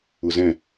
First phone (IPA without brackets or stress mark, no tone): ʊ